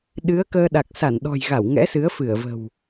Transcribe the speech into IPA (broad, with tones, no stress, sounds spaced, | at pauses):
ɗ ɨ˨˦ ə̯ k əː˧ ɗ a˨˩ k̚ s a˧˩ n ɗ ɔ̤˨˩ j ɣ a˧˩ w ŋ ɛ̰˧˥ s ɨ˨˦ ə̯ f ɨ˧˩ ə̯ v ə̤˨˩ w